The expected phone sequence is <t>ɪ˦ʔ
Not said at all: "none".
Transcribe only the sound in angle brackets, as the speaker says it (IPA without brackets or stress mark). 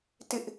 t